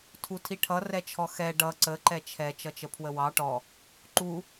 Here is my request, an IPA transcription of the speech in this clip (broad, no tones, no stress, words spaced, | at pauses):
tʰutʰiʈʰʌ rɛt͡ʃʰɔxɛ ɖʌ ǀə ǃɛt͡ʃʰɛ t͡ʃʌt͡ʃəpʰwəwɑ ʈɔ | ǃu